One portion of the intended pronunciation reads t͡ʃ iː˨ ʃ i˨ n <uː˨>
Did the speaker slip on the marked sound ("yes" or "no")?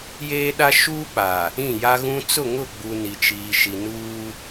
yes